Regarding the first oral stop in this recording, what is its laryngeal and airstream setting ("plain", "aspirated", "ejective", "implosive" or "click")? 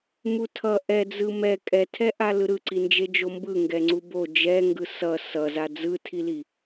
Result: aspirated